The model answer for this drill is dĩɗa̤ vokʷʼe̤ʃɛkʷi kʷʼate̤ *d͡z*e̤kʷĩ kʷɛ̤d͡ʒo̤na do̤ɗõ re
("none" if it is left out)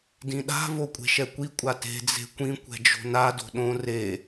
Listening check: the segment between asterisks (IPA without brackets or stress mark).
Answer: d͡z